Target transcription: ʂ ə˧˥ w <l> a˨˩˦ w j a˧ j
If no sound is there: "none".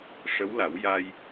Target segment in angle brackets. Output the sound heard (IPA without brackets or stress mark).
l